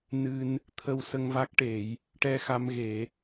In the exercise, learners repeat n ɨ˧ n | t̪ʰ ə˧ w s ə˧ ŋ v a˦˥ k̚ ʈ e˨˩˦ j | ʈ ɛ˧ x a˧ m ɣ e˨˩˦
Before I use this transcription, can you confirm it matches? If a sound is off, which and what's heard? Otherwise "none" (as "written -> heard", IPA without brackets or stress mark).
none